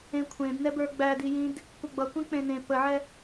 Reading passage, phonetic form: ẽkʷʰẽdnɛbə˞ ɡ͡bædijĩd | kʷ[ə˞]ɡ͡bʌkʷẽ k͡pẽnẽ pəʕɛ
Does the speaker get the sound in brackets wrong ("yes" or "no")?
yes